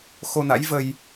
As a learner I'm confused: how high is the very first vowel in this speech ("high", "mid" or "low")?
mid